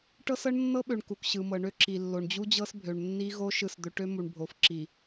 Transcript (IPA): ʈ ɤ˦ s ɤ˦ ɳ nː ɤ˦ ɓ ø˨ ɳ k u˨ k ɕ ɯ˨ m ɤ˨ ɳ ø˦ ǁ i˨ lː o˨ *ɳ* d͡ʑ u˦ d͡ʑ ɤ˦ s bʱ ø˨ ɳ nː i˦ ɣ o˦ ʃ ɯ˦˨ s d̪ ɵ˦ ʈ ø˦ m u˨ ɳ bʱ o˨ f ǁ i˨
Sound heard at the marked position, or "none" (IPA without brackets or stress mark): ɳ